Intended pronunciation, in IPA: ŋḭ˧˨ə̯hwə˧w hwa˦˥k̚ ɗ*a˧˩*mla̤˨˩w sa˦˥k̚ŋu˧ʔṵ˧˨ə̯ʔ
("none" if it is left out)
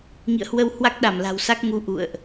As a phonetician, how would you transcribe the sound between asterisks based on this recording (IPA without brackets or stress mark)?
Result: a˧˩